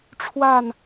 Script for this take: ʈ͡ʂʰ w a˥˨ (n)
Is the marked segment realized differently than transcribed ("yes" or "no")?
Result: no